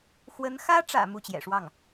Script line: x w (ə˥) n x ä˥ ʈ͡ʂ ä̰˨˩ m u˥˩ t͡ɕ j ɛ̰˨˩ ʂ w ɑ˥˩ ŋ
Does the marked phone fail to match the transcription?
yes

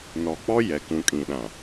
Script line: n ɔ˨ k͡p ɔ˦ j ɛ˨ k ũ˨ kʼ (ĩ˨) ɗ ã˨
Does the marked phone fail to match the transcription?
no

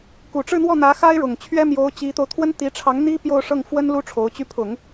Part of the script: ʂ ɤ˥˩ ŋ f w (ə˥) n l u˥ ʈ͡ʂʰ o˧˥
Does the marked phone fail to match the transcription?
no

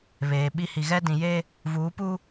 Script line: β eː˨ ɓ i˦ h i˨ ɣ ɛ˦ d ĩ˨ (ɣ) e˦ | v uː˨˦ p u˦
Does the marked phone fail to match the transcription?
yes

